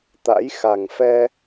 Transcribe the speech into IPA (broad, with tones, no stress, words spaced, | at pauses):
t̪a̰˧˥jxa˨˩ŋfɛ˧